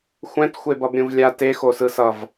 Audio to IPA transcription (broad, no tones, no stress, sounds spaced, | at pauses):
xʷ ɛ̃ t xʷ e b ʌ b ɾʲ ũ v lʲ a t e x o s ɯ s ʌ v